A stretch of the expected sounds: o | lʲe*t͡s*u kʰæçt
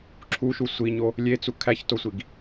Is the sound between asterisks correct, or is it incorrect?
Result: correct